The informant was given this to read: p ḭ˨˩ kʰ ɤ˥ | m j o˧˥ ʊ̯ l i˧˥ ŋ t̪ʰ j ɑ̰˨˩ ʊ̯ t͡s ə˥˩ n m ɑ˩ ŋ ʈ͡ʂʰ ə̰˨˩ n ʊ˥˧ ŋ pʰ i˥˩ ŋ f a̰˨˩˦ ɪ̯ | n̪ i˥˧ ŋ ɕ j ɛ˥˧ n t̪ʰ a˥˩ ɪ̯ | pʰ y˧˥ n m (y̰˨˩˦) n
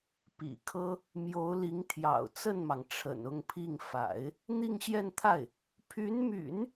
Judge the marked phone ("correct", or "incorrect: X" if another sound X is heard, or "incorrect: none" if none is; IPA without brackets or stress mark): correct